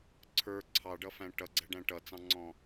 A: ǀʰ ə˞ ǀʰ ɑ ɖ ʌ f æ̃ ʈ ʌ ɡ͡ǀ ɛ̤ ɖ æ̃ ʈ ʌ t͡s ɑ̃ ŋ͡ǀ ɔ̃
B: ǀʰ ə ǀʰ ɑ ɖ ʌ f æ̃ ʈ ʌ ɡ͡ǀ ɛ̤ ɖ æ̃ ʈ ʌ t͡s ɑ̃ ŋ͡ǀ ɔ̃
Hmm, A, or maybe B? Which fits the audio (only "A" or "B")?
A